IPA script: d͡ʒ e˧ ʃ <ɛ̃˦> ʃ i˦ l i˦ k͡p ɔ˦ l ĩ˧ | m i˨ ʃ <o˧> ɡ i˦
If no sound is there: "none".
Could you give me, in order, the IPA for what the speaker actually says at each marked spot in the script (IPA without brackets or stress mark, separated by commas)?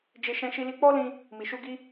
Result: ɛ̃˦, u˧